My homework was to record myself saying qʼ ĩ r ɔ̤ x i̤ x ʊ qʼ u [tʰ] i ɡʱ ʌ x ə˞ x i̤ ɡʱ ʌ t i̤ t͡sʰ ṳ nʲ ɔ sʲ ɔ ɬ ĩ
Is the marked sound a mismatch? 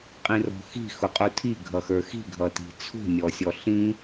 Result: no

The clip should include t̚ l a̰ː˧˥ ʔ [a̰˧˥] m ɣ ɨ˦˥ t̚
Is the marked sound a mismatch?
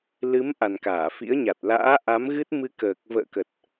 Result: yes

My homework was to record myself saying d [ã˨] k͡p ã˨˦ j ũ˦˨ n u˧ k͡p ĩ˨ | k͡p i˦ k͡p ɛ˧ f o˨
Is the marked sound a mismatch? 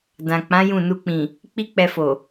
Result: no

